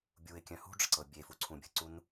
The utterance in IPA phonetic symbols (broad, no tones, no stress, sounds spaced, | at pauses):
bʲ u ɪ̯ kʲ œ̃ h ṳ ɖ͡ʐ ə̤ ǀ ɤ bʲ e f u ǀʰ ũ bʲ ə̤ ǀ u n